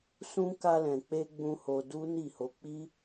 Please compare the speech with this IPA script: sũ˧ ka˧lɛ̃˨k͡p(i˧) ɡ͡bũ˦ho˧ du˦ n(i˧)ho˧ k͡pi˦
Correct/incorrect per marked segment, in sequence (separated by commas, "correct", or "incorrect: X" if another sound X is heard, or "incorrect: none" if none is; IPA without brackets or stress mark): incorrect: e˧, incorrect: i˦˨